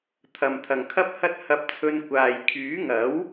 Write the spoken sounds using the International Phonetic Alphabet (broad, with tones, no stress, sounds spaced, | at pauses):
t̪ʰ ɐ˨ m t̪ʰ ɐ˨ ŋ kʰ ɐ˥ p̚ h ɐ˥ t̚ h ɐ˧ p̚ t͡sʰ ɵ˧ n kʷ aː˨ j kʰ yː˨˥ ŋ ɐ˨˥ w